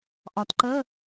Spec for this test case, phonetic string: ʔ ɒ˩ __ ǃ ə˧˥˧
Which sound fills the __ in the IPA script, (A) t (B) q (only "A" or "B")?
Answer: A